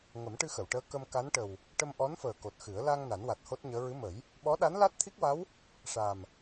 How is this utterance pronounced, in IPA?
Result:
ŋ ə˨˩˦ m ʈ ɨ˧ x ə˨˩˨ w ʈ əː˧˥ k ə˧ m k a˧˥ n ʈ ə˨˩ w | ʈ ə˧ m ʔ ɔ˧˥ n f əː˨˩ k o˨˩ t̚ x ɨ˨˩˦ ə̯ l a˧ ŋ n a˨˩˦ n w a˨˩ t̚ h o˦˥ t̚ ɲ əː˧˥ ɹ ɨ˧˥ m ə˨˩˦ j | ɓ ɔ˧˥ ɗ a˧˥ n l a˦˥ t̚ t̪ʰ i˦˥ k̚ w a˧˥ w | ʂ a˨˩ m

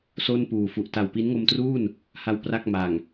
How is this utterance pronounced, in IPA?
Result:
s o˥˩ n p uː˨˩ f u˨˩ ʔ t a˨˩ w p i˦˥ n ŋ o˧ m t r uː˥˩ n | h a˧ w p r a˥˩ k̚ m a˨˩ ŋ

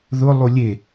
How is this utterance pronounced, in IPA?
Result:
ð ʊ lˠ u lʲ e

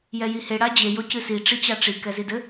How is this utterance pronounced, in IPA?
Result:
j ɛ j i h e ɽ a d͡ʑ e j o c ɨ s i ʈ͡ʂ i t͡ɕ a ʈ͡ʂ i k ɛ z i d ɘ

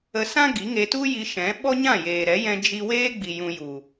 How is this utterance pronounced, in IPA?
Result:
ə˧ s ã˦ ɡ i˨˦ ŋ e˧ t u˦ j i˧ ʃ ɛ̃˨˦ ɓ ɔ˦ ɲ ã˦˨ j eː˨ ɾ ɛ˨˦ j ɛ̃˧ d͡ʒ i˧ w eː˦ ɡ͡b i˨ j ũ˧ j u˨

